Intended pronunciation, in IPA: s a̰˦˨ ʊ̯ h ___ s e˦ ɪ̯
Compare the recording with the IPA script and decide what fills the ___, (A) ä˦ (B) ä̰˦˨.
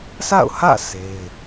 B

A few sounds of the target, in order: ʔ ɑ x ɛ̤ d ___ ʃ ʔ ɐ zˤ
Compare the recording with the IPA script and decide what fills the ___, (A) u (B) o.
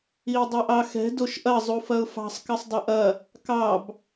B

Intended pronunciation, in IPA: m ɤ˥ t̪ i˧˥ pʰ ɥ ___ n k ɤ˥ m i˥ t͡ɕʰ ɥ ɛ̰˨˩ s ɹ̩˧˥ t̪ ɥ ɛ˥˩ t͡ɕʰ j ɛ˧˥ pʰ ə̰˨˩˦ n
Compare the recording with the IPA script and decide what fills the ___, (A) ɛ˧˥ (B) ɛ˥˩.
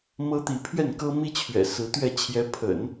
B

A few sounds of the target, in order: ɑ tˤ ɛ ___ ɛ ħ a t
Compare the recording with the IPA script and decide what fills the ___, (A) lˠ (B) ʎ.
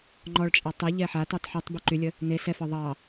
B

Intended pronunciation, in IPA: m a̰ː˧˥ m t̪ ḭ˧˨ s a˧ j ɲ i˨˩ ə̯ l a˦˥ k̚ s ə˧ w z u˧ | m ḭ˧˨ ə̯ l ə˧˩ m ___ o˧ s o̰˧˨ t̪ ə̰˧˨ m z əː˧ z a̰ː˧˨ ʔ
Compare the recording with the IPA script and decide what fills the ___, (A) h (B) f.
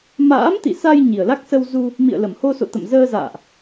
A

